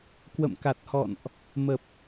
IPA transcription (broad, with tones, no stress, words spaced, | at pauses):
kwə̰˧˨m ka˨˩t̚hɔ̰˧˨nʔ | mə˨˩p̚